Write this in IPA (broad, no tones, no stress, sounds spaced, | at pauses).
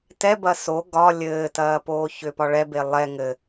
t ɛ b ɐ s o ɡ ɒ lʲ ɘː t ɐː p oː ç ʏ p ɒ ɭ ɛ b e lˠ ɛ ŋ ɘ